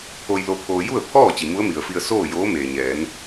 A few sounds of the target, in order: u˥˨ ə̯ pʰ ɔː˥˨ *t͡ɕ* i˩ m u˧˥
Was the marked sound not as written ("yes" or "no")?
no